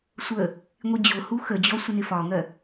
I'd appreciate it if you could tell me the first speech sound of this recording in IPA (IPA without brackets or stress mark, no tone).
sʷ